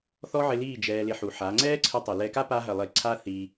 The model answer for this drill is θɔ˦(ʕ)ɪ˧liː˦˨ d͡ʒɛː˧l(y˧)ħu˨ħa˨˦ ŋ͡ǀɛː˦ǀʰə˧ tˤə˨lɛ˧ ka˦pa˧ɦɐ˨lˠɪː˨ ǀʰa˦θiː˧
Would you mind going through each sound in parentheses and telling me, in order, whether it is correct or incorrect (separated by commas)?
correct, incorrect